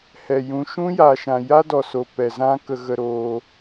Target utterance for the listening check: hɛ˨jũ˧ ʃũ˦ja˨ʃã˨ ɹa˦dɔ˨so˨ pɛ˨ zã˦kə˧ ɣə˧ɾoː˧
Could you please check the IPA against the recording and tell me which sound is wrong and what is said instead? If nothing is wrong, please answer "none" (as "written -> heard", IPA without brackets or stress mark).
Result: ɹ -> j